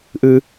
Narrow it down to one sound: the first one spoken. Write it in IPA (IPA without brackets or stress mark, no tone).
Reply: ʔ